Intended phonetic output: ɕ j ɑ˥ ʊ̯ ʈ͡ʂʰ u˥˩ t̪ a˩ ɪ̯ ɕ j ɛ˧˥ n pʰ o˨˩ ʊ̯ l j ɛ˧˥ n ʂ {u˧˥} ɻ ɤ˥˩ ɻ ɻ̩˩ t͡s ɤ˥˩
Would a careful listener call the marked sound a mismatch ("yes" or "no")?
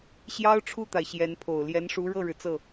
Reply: no